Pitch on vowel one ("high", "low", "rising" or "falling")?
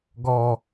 high